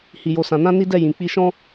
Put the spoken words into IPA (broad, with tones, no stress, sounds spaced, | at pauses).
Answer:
h i˨ j o˨ s ã˨ n ã˧ n i˦ d ɛ˦˨ j ĩ˨ k͡p i˧ ʃ ɔ̃˦